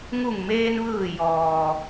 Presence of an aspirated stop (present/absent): absent